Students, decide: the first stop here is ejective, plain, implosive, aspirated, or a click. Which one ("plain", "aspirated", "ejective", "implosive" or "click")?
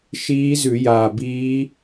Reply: plain